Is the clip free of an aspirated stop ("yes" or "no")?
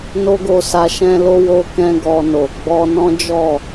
yes